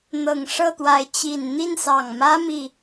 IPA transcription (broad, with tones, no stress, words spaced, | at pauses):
n̪ɤ˨˩ŋ ʂɤ˥˨t̪wa˨˦ɪ̯ t͡ɕi˨˩n n̪i˥˨nsɑ˨˩ŋ mä˦mi˨